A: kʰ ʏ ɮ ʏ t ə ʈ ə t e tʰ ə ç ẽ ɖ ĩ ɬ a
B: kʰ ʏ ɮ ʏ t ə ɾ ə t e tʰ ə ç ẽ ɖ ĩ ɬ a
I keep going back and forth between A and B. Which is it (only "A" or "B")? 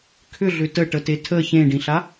A